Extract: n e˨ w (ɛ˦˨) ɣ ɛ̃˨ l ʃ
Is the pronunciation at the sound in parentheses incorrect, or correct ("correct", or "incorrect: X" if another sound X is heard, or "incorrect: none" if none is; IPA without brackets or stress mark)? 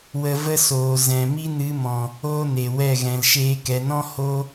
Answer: correct